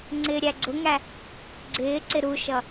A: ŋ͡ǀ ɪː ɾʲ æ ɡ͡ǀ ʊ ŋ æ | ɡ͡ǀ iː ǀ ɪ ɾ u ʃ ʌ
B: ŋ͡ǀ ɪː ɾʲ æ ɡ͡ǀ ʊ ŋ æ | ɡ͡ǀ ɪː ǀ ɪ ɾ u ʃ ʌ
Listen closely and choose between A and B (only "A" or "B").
B